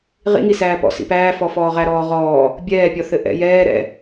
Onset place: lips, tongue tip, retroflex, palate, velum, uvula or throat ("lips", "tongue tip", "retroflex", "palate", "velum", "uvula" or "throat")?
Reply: uvula